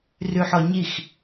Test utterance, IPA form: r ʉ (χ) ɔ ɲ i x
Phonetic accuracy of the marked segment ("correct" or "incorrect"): incorrect